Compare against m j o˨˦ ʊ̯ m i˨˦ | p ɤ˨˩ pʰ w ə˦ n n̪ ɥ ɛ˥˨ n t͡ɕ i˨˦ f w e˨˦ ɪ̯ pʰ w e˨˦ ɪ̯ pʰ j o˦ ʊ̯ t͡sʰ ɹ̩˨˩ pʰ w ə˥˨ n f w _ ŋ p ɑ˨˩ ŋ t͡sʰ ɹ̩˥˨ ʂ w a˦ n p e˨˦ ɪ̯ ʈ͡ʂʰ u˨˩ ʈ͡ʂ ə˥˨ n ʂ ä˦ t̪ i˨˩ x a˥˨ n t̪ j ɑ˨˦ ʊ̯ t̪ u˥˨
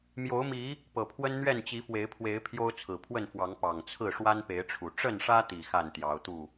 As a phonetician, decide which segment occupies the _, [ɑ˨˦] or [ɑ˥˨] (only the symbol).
ɑ˨˦